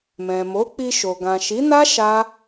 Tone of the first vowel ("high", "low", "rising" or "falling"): low